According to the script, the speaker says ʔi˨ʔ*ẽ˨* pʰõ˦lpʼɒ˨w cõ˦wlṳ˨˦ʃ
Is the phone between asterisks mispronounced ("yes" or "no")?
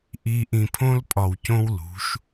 yes